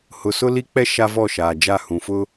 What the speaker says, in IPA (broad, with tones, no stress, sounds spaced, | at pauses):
h ʊ˨ s ʊ˦ l i˦ k͡p ɛ˦ ʃ a˦ v ɔ˦˨ ʃ aː˨ d͡ʒ a˦˨ h ũ˨ f ʊ˦